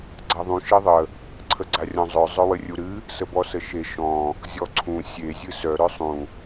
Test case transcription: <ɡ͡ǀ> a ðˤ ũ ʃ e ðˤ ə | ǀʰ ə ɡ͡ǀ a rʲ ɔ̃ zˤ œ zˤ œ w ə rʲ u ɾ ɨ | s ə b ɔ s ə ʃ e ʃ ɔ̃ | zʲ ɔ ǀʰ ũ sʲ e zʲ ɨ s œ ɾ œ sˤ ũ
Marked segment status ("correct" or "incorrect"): correct